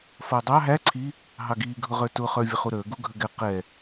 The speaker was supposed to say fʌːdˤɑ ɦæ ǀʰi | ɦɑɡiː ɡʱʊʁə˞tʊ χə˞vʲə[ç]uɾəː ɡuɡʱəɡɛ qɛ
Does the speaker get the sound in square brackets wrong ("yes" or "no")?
yes